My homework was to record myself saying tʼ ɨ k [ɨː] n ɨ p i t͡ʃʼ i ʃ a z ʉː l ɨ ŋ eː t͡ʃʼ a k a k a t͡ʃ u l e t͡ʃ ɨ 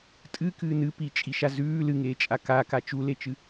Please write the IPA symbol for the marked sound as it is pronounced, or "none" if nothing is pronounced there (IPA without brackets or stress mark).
ɨː